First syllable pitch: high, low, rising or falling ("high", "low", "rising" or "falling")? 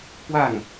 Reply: falling